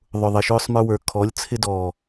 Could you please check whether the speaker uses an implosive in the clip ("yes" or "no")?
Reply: no